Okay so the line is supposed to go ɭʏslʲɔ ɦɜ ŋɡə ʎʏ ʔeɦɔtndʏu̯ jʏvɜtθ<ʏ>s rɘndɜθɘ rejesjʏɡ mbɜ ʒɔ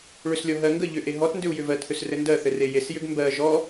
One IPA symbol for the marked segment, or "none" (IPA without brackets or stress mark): ʏ